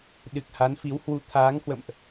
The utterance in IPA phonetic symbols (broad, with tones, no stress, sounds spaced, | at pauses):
ɗ ɨ˨˩ k̚ h a˨˦ n f i˨˦ w h w u˨˦ t̪ʰ aː˨˦ ŋ h w ə̰˧˨ m ʔ